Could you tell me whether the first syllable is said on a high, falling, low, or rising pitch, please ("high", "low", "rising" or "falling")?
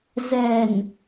low